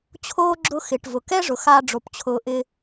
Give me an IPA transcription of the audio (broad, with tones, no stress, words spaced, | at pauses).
t͡ɕʰoː˥ɡ͡ǁʊ˦ xɪ˩ʈvʊ˩kɛ˥ ʐʊ˩xa˦ɖ͡ʐo˩p t͡ɕʰʊː˨ʔɪ˦